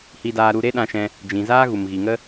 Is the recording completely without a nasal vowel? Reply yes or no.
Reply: no